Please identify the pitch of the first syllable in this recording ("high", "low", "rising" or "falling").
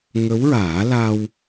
rising